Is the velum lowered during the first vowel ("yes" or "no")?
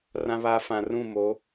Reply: yes